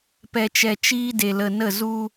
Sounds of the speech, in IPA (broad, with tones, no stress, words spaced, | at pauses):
pɛ˧t͡ʃɛ˧ t͡ʃiː˦de˧lə˧ nə˦˨ zu˧